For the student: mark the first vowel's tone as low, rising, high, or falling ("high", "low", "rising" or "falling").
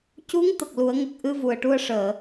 rising